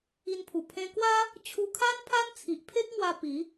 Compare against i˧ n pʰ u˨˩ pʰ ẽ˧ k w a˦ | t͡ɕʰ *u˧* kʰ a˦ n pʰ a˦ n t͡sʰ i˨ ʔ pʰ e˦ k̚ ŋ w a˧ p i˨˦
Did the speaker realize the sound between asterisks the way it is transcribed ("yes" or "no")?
yes